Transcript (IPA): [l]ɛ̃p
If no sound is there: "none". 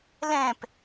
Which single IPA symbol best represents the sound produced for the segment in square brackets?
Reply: l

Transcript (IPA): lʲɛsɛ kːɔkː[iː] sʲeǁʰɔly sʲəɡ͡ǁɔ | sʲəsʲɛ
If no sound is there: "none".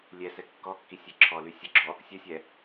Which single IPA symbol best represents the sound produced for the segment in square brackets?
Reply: i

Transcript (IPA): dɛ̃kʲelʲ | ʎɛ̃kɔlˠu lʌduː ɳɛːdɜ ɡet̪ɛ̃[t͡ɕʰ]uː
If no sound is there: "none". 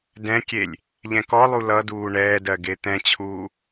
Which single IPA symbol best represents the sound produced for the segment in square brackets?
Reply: t͡ɕʰ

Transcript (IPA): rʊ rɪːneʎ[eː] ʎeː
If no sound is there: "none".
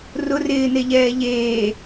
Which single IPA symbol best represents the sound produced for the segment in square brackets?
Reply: ɛː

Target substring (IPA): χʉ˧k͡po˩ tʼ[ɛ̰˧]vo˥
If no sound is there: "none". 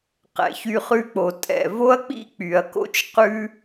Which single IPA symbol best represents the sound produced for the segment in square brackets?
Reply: ɛ̰˩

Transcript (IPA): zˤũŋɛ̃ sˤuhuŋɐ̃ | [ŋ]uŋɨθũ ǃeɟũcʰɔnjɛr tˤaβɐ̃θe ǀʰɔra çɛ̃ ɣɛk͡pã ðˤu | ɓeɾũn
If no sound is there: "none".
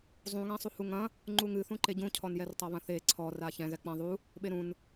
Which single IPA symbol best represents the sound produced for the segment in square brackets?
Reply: ŋ͡ǃ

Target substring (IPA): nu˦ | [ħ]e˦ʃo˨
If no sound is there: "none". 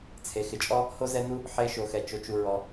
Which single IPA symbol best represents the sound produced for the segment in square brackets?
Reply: ħ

